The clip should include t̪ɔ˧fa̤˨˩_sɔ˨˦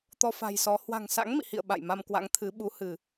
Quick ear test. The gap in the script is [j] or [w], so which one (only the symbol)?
j